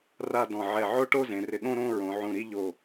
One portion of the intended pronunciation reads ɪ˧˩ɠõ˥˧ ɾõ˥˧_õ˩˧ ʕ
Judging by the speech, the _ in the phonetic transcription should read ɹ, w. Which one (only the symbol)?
ɹ